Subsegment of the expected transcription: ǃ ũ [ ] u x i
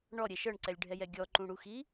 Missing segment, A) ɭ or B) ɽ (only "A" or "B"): B